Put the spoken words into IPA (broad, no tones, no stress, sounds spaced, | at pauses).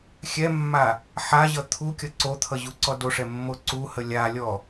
xʲ ɛ mː a | ħ a ʑ ʌ t̪ʰ u kʲ ʌ ǀ o t̪ʰ ʌ ʑ u ǀ ɔ d o ʂ ɛ mː o ǀ u h ə lʲ a lʲ ɔ